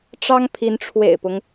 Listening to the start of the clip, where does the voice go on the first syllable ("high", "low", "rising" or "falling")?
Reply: high